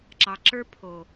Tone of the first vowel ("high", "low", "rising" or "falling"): low